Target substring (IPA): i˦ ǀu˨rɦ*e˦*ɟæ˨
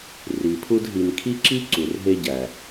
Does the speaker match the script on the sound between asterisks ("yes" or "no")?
yes